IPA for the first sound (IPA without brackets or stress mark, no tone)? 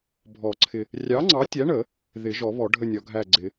bʱ